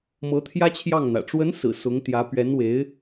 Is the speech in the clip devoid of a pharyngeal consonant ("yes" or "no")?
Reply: yes